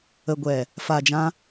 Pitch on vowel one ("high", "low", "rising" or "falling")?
low